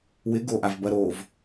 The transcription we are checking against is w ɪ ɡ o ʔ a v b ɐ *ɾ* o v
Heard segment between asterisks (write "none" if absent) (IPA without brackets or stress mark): ɾ